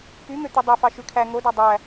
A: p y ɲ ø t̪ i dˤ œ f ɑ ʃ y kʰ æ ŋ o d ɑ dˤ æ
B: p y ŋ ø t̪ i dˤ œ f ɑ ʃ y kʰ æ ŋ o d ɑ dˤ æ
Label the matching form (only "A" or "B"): B